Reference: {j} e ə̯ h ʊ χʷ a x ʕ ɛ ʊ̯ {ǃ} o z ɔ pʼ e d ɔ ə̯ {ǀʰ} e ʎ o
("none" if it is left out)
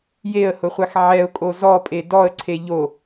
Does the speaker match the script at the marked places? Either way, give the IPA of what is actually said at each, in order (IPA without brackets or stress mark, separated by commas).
j, kʼ, ǀʰ